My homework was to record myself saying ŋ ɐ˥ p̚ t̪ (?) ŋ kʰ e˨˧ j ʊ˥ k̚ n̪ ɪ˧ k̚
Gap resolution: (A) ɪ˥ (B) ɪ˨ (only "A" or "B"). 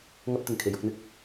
B